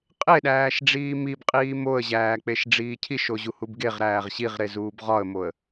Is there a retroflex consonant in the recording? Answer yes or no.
yes